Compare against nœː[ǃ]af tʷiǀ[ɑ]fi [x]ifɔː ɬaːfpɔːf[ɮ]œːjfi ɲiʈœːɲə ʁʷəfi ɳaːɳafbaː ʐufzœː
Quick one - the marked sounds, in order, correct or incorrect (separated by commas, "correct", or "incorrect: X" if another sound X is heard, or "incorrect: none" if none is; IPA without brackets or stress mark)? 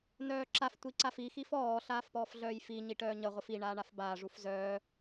incorrect: ǁ, incorrect: a, correct, correct